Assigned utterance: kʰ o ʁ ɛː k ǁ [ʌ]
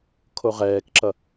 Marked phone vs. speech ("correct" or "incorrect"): correct